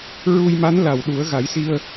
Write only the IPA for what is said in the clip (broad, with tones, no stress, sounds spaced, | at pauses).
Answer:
ɹ u˧ j m a˧˥ n l a˨˩ w ɗ u˨˩˦ ə̯ ɣ a˨˩˦ j s i˧ ə̯